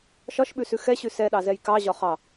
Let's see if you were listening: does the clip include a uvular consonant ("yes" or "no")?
yes